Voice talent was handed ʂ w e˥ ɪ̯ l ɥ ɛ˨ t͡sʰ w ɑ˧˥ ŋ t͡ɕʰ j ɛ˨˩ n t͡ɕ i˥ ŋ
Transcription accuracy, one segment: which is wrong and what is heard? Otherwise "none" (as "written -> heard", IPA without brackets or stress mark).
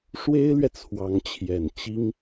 none